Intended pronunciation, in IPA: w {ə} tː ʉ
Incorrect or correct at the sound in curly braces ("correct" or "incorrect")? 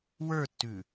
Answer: incorrect